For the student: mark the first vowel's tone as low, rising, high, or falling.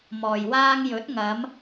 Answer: low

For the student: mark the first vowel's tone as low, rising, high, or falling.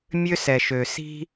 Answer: high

